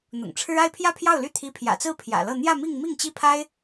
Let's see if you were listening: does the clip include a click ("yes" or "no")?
no